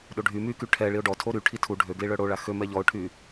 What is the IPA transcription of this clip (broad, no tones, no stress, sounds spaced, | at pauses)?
ɗ o ɖʱ y m y k y ʈʰ ɛ ɭ i ʊ̯ ɖ ɔ tʰ o ɾ y ʈʰ i tʰ u ɖʱ ø ɡ l i ɭ œ ɽ o ɭ a x ø m ɛ ʎ ɔ ʊ̯ ʈʰ y